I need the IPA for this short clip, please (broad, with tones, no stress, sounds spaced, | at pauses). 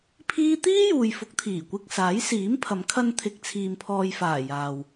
pʰ iː˥ t̪ iː˥ j uː˨ j f ʊ˨˥ k̚ t̪ʰ iː˨˩ kʷ ɪ˧ k̚ s aː˨˥ j s iː˨˥ m pʰ ɐ˨˧ m kʰ ɐ˧ n t̪ʰ ɪ˨ k̚ t͡sʰ iː˨ m pʰ ɔː˨ j f aː˨˩ j aː˨ w